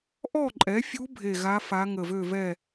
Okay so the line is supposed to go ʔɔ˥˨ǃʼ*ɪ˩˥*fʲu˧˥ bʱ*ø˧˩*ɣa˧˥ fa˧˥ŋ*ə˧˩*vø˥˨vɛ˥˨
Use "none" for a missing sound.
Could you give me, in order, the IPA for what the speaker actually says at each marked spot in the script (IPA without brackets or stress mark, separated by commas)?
ɛ˩˥, e˧˩, ə˧˩